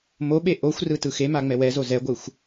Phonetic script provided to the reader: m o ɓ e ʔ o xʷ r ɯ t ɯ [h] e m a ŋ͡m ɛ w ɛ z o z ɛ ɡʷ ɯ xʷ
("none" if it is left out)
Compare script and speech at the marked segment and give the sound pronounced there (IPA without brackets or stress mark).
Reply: x